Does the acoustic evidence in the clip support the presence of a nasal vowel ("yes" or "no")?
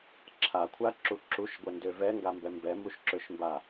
no